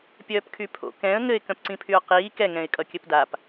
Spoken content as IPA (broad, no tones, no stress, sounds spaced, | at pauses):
pʲ œː p kʰ y pʰ o̰ k ɛ̃ ə̯ ŋ ɘ ɪ̯ k œ̃ p ǀ ĩ pʰ y ʊ̯ q iː k ɛ ŋ ɛ̃ ɪ̯ kʼ ʌ kʲ ɘ p d a p